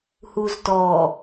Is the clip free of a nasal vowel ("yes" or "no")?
yes